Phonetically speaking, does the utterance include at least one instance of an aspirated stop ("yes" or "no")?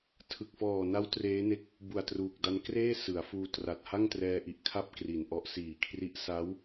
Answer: yes